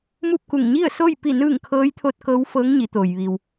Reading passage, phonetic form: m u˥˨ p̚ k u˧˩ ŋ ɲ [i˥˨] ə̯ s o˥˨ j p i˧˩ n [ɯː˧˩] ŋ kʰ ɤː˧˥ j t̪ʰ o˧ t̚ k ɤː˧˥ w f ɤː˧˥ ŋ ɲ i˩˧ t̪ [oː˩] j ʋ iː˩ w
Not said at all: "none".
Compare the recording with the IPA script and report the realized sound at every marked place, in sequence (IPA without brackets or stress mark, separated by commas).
i˥˨, ɯː˧˩, oː˩